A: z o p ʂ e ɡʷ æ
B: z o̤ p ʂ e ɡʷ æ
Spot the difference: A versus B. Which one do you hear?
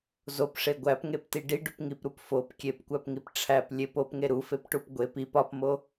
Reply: A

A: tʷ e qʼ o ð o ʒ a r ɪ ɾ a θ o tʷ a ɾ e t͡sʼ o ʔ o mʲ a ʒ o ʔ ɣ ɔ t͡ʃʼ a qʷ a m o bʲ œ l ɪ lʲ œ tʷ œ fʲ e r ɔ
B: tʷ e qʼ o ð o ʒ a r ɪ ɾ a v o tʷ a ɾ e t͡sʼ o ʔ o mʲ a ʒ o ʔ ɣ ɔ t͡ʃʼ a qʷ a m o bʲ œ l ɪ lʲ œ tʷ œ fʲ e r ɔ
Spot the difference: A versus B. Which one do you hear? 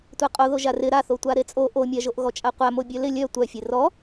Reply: A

